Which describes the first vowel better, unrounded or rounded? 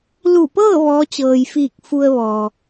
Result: rounded